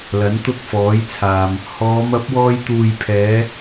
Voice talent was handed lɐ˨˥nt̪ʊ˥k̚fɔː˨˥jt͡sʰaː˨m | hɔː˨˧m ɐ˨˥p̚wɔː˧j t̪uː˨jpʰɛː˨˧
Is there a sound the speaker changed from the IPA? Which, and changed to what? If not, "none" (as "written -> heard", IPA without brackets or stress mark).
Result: none